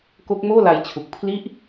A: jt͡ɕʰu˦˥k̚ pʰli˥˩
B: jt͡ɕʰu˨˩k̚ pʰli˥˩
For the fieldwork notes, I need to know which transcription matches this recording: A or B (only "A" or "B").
B